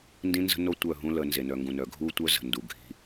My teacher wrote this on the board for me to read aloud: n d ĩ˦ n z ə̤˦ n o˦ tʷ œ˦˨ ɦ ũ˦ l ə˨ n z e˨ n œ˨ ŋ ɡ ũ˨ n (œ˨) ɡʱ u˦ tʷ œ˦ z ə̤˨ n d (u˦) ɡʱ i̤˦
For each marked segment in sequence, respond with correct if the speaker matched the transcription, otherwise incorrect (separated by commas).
correct, incorrect